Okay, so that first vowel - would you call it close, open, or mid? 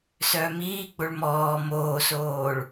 mid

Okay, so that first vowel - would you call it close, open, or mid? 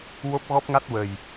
mid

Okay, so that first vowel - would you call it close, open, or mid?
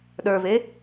mid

